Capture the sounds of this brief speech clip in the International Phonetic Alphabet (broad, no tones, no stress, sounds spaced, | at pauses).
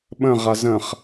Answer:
ɓ ə̃ ʁ a z ə̃ χ